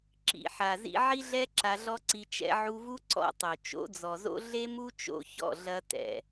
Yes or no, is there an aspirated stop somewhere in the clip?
no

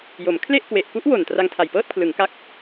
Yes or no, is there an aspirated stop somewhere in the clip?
yes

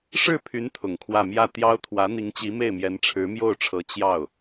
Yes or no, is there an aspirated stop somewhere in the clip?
yes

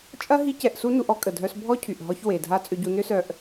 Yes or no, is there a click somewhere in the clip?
no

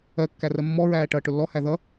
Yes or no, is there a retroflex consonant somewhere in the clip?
yes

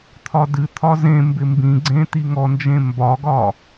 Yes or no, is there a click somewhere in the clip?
yes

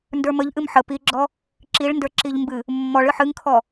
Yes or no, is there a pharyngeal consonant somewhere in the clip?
yes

